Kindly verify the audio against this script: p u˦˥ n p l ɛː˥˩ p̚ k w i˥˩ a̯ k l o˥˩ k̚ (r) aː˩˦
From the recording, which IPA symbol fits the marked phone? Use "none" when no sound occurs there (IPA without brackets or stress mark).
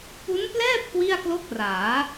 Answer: r